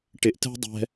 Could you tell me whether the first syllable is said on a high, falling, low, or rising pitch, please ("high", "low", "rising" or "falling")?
low